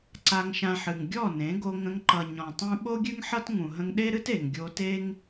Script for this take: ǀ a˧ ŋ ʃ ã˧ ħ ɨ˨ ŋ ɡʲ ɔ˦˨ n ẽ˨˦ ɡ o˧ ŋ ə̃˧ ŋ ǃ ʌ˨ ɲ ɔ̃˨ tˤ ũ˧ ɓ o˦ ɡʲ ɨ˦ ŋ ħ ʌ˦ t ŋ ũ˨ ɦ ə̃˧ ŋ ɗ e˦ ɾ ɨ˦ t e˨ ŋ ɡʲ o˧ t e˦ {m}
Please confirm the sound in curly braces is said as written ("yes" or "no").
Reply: no